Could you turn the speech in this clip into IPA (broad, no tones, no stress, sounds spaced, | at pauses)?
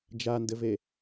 d͡ʒ a n d ɘ v e